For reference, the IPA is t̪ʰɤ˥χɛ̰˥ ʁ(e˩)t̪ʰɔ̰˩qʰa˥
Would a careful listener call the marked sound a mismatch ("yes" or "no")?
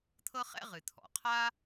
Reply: yes